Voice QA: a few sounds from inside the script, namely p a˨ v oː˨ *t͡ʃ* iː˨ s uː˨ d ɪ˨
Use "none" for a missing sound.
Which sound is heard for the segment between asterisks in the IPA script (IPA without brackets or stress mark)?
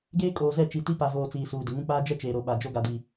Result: t͡s